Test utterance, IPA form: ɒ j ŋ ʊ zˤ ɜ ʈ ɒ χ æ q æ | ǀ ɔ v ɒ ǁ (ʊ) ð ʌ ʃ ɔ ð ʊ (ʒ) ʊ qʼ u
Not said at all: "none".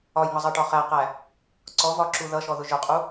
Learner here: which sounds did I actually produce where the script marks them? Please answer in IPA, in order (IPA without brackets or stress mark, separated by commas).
u, ʒ